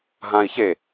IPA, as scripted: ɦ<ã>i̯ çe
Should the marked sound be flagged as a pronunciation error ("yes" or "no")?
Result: no